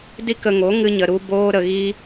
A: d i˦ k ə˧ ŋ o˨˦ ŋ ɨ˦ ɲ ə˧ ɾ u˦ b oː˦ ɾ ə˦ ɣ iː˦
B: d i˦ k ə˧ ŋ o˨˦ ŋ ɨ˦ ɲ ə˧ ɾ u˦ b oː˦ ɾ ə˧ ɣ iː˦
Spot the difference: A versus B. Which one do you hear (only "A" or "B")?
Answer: B